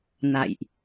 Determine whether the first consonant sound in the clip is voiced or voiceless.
voiced